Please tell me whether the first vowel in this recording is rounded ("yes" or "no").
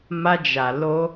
no